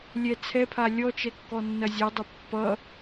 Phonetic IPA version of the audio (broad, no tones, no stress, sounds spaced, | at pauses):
lʲ ɛ t͡sʰ ɛ pʰ a lʲ ɔ t͡ʃ ɛ kː ɔ nː ɐ zʲ a dˤ ʌ pː ʌ